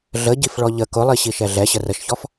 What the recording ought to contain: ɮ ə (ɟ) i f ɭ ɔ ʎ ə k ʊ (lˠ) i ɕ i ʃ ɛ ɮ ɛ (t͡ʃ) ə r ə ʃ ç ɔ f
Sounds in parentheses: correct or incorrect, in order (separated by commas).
correct, correct, incorrect